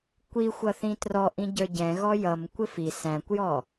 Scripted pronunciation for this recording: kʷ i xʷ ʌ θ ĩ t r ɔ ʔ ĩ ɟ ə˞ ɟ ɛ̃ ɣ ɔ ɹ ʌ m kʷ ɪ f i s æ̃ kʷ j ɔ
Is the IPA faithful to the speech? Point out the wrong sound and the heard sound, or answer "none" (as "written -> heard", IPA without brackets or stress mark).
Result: ɹ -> j